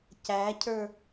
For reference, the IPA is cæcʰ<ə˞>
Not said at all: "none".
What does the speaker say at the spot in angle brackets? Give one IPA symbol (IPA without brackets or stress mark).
ə˞